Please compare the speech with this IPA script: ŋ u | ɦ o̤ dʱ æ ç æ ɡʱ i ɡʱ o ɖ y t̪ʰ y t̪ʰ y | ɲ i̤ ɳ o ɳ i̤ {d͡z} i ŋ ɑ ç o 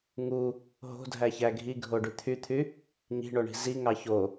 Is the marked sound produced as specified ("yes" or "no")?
no